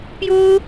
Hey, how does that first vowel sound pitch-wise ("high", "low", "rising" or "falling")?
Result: high